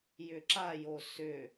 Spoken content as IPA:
jʏǁajo sʏ

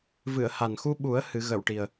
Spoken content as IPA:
vɨ˨˩˨ə̯ha˨˩nxu˧ɓu˨˩˦ə̯ hɨ˨˩˦ɣə˨˩˨wʈi˨˩ə̯

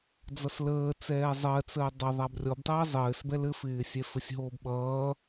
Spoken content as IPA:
d͡zʌsləː t͡sɛːzˤɜt͡səː dˤɪ ðˤabrʲɔbtˤəː zˤɘːs bɛlɘfɪːsʲɛ fɘsʲɦoːbɓʌː

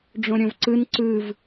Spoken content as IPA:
ɖ͡ʐõɾʲõvǀɯn ǀɯv

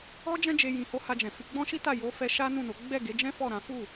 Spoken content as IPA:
ɔ˦d͡ʒɛ̃˦d͡ʒe˧ jĩ˨ho˨˦ ha˧d͡ʒɛ̃˨fi˧ ɡ͡bɔ̃˦ʃi˦ta˦˨ jo˨˦fɛ˧ ʃa˦nũ˦˨no˨˦ ɡ͡bɛ˦˨ɡe˨˦d͡ʒɛ̃˦ fɔ˦˨ ɾã˨˦ fu˦˨

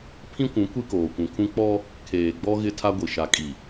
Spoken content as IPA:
pʰĩ˦kʷũ˨˦ kʷi˦koː˨kʷũ˨kʰũ˦ k͡pɔ˦ | kʰeː˨ɡ͡bɔ˦ ɣɪ˦tʰa˦ɡʷi˨ ʃa˨kʼi˨

